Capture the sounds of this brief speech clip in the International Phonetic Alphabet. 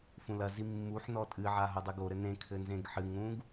fũlɐzi mːuħnɔ tʼɨʕa ɦodˤɨɡoɾɘ nẽ kʰɘnzẽɡħɨŋɾũɡ

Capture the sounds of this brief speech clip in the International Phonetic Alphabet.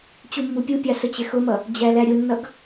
t͡ɕumːupʲupʲɑ sət͡ɕɪxʊmʌ | d͡ʑælæɾʲʊnːʌɡ

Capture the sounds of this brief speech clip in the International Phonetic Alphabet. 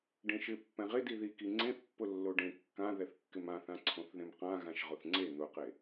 ɖẽʃɪ pːɛ̃ʁɪ diðiki ŋ͡ǀẽθpːʊ lːoɖẽ kːã ðɛθkːɪmãθã ǀʰõθðẽmqã ɣãʃʁʊθŋ͡ǀe n̪ʊqe

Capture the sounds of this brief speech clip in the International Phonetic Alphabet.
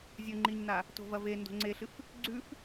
zʲɵŋ͡ǃiɲna | to̤vɐve ndo̤ŋ͡ǀeɬɨf | ɡ͡ǀʉf

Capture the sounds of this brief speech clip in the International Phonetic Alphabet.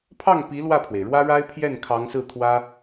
pʰɑ˥˩ŋpi˧˥ lwä˥˩pʰwe˩ɪ̯ɻwä˥ɻa˥ɪ̯ pʰjɛ˥˩n kʰɑ˧˥ŋsɹ̩˥˩t̪ʰwä˥

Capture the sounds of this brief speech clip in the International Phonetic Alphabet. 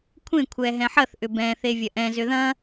kʷʰẽ kʷʰɛɦɛ̃ħɐθʔʏ bɛ̃θe vʲɐʔɛ̃zʏ ðɐ̃

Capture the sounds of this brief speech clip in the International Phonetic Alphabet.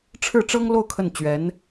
ʈ͡ʂʰɻ̩˥˩ʈ͡ʂɤ˥ŋ lo˥˧ʊ̯ kʰə˥˩nt͡ɕɥɛ˧˥n

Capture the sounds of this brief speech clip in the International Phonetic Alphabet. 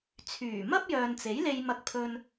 t͡sʰyː˨˩ mɐ˥p̚jœː˨nt͡se˨˥jle˧j mɐ˧k̚pʰɵ˧n

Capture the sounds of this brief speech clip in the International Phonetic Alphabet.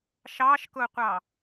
ʃɑːʃkʊːqʷɑ

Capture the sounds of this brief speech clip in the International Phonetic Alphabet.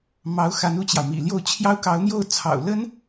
mɑ˧˥ʊ̯xa˧˥n u˥˩t͡ɕjɑ˩ʊ̯mḭ˨˩ljo˥˩ʊ̯ t͡ɕʰjɑ˥ʊ̯kɑ˧˥ʊ̯n̪jo˥˩ʊ̯ t͡sʰɑ̰˨˩ʊ̯lə˥n

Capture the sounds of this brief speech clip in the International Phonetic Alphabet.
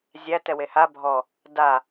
zʲæ tɛweha bʱɔ | da

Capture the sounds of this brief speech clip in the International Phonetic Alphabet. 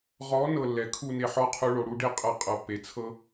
ʁɔ˨˦ nɤ˦˨lːɛ˨ kʰu˦˨ne˧ħɔ˦˨qʰu˧ ɭo˨ɽu˧ɖe˦ qʼɤ˧qʼɤ˨pːe˨t͡sʰɤ˦

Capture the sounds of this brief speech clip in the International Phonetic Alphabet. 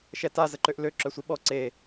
ʃɛta zəǃøʔlø ǁœsʷiɓɔ ǀe

